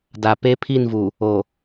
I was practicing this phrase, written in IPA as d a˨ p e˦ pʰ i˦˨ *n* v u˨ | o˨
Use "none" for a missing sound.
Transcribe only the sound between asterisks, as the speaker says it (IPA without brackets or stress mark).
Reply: n